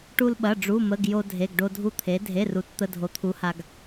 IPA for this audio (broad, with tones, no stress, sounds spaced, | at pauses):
ʈ u˧ l ɓ ɐ˩˧˩ ɖ͡ʐ u˩˧˩ m ə˩˧˩ ɡ j o˧ dʱ e˩˧˩ ɡ ɖ o˧ dʱ u˧ t̪ʰ e˩˧ dʱ e˩˧˩ r u˩˧ t t̪ ə˩˧˩ dʱ o˩˧ t̪ʰ u˩˧ h a˩ ɡ